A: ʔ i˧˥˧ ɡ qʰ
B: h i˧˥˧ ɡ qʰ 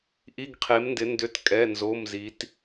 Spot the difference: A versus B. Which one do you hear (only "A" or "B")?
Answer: A